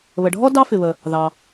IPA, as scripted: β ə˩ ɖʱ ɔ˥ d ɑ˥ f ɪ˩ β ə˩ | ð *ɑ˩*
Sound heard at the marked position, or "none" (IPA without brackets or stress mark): ɑ˩